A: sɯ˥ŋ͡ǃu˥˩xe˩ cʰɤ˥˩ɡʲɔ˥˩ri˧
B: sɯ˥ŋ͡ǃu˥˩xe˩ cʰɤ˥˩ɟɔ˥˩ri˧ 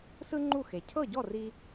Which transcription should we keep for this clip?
B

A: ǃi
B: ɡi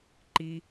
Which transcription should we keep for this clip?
A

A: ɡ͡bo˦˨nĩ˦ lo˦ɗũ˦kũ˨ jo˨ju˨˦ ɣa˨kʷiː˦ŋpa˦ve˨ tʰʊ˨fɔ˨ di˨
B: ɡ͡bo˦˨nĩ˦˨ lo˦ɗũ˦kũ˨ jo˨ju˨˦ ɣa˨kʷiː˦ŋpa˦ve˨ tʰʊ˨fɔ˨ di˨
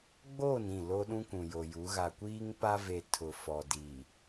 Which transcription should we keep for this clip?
B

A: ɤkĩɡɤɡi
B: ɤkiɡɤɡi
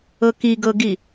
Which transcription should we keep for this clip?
B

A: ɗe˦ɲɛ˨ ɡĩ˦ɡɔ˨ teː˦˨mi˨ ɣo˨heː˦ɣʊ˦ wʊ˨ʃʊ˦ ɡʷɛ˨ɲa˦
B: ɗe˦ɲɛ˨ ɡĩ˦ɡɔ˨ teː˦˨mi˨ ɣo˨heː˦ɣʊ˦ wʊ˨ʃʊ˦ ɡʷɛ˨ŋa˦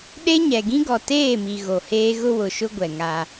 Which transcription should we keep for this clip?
B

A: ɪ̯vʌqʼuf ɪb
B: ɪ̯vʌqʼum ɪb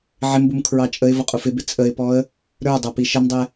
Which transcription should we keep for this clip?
A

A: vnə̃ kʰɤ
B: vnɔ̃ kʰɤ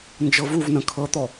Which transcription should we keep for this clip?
A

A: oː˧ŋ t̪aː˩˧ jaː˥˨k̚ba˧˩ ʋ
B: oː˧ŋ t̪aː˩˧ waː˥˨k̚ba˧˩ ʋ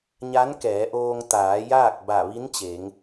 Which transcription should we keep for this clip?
A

